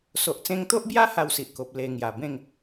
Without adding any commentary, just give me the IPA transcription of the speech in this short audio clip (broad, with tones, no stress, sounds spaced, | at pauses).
s o˨ ʔ t͡s ẽ˧ ŋ t̪ o˦ ʔ b j a˦ h a˥˧ w s i˨ ʔ k o˨ p̚ l e˧ ŋ j a˨˩ b ẽ˥˧ ŋ